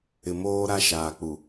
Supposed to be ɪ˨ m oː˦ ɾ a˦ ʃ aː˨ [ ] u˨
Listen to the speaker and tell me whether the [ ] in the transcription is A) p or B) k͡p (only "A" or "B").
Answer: B